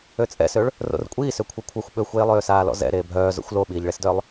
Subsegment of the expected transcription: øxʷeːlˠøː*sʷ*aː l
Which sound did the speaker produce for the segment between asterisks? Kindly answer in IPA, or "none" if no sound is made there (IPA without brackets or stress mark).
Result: s